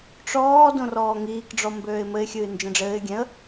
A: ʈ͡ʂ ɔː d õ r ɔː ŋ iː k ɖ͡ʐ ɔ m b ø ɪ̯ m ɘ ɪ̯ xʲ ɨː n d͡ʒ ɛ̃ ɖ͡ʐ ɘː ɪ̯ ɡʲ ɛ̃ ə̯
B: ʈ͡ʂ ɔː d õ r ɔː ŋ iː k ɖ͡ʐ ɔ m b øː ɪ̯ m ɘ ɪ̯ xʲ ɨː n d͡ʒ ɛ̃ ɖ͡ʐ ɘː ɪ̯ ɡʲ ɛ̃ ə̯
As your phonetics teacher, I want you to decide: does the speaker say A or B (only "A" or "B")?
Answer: B